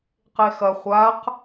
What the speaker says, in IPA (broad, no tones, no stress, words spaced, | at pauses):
qexɐ χʷaq